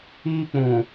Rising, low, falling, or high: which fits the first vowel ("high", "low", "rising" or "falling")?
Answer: high